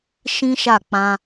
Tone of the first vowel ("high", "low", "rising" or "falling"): high